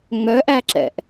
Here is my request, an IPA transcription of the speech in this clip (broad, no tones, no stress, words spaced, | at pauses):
ŋ͡mœʔæǁɛ̰ʔ